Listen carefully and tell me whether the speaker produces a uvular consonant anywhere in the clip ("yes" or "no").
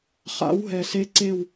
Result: yes